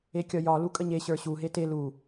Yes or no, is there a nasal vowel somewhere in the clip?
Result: no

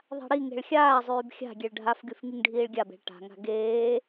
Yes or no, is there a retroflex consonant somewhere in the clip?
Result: yes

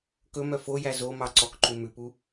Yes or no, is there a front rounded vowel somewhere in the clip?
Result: yes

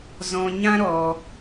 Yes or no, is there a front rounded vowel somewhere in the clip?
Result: no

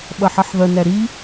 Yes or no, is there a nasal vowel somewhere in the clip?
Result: no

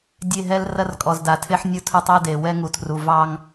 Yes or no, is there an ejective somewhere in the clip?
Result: yes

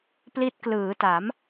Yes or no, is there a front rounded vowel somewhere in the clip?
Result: no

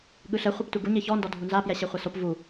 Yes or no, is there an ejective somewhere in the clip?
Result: no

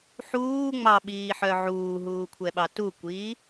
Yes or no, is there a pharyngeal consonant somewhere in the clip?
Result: yes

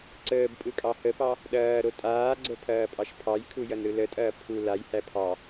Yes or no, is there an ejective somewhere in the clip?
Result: yes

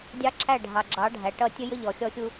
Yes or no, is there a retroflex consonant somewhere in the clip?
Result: yes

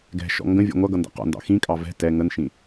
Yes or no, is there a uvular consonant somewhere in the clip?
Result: yes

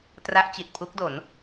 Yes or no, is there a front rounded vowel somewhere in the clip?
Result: no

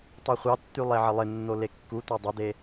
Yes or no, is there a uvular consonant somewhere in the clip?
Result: yes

